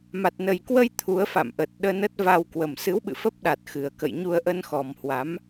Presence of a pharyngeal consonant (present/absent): absent